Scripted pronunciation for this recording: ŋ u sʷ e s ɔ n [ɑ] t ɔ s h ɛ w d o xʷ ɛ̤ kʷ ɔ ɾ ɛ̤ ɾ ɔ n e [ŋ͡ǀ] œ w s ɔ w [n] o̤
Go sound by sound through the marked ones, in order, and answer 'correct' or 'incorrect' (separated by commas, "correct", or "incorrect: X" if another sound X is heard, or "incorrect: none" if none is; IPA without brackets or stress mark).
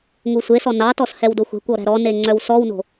correct, correct, correct